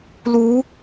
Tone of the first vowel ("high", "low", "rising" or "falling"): rising